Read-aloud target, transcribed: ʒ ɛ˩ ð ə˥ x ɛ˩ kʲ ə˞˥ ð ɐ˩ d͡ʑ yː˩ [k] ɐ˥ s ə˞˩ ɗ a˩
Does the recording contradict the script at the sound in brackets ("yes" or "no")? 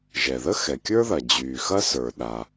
yes